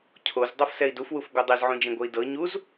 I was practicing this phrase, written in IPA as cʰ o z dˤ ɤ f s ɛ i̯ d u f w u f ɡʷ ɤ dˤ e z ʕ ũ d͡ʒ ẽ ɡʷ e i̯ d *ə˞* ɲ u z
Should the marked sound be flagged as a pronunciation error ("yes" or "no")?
yes